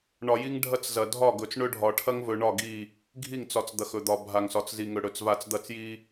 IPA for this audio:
ɳ ɒ˨ j i˦ ŋ ɖʱ ɐ˦ t͡s z ɐ˨ dʱ ɒ˦˨ ɡ ɵ˨ t͡s ɳ ɵ˦ ɖʱ ɒ˨ ʈʰ ɐ˦ ŋ v ɵ˨ ɳ ɒ˦˨ ɡ i˦˨ | ɡʱ i˦˨ ŋ t͡s ɒ˨ t͡s d̪ ɐ˨ x ɵ˨ d̪ ɒ˨ bʱ a˨ ŋ s ɒ˨ t͡s z i˨ ŋ ɵ˨ ɽ ɵ˨ t͡s v a˨ t͡s d̪ ɐ˦˨ t͡s j i˦

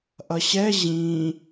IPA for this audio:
ʔ ʌ ɕ ɛ ʑ ĩ

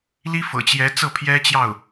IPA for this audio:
l i˥ f ɤ̰˨˩ t͡ɕ j ɛ˧˥ t͡s ɤ˥˩ pʰ j ɛ˥ t͡ɕ j ɑ˥˩ ʊ̯

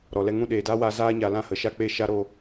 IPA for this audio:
ɾ ɔ˨ l ɛ˧ ŋ ũ˦˨ ɗ eː˨ d aː˦ w aː˧ z aː˦ ɲ a˧ l ã˦ h ə˨˦ ʃ a˦ k͡p e˦˨ ʃ a˦ ɾ oː˦

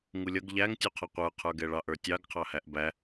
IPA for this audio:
ŋ u lʲ ʌ ɡ ʎ æ ŋ tʲ u qʰ ʌ qʷ ə˞ qʰ ə˞ ɡ ɛ ɭ ɑ ʔ ə˞ tʲ ɑ ɡ qʰ ɑ h æ ʔ b æ

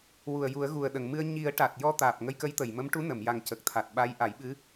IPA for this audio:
w u˨˩ ə̯ j u˨˩˦ ə̯ ɣ u˨˩ ə̯ ɗ ə˨˩˨ ŋ m ɨ˧ ə̯ ɲ i˨˩˦ ə̯ ʈ a˨˩ t̚ j ɔ˧ t̪ aː˨˩ p̚ ŋ ə˧ j k ə˧˥ j t̪ ə˨˩˨ j m ə˧˥ m ʈ u˧˥ n ə˨˩˨ m j a˨˩ ŋ c ə˨˩ k̚ t̪ʰ a˨˩ t̚ ɓ a˧˥ j ʔ a˨˩˦ j ɓ ɨ˧˥

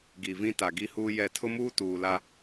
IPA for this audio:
ɡ i˨ v ĩ˦ t a˨ ɡ i˦ h uː˦ j ɛ˦˨ tʰ ʊ˦ m uː˦ t uː˨ l a˦

